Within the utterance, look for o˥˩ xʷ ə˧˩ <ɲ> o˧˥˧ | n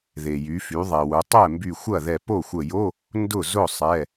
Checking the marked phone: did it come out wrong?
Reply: yes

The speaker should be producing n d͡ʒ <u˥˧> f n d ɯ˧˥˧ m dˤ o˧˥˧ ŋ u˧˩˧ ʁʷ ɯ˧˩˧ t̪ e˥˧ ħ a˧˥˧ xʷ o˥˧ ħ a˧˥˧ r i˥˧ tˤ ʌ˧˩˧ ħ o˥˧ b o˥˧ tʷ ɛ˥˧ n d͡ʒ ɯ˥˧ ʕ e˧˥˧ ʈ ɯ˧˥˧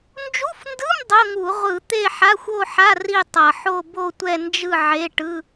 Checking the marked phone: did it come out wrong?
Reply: yes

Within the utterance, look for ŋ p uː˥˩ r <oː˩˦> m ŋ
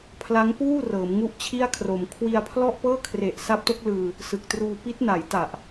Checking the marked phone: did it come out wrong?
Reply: yes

